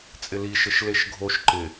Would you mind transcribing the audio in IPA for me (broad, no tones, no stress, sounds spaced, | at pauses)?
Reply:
t͡sʼ ɪ l i ʃ ɘ ʃ l e ʃ ɡʱ o ʃ ǃ ɪ